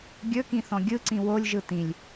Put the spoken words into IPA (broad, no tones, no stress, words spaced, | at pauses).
ɡʲɵkĩθɔ̃ ɡʲɯǀĩ wolʲʒɯ tĩlʲ